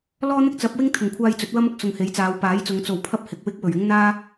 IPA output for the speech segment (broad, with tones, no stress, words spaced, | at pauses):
lɔː˥n̪ɪ˥k̚t͡sɐ˨˥p̚wɪ˥ŋ t̪ʰʊ˨˩ŋkʷʰaː˧j t͡sɵ˨˥t̚wɐ˥mʊ˨k̚ sʊ˨ŋhe˨˥jt͡saː˨˧w paː˨˥jt͡sʊ˨˧ŋ t͡so˨wpʰɐ˥p̚ hɪ˨k̚wɪ˥k̚ wɵ˨˩ɥɪ˥ŋ n̪aː˥